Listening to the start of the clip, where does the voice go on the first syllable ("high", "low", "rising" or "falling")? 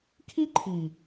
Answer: high